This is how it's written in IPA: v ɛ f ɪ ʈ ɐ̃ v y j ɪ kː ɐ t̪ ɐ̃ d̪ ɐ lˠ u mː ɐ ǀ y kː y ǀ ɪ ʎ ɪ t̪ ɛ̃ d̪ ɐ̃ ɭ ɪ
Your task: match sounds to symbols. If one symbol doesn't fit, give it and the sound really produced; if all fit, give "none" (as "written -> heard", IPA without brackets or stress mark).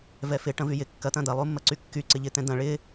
none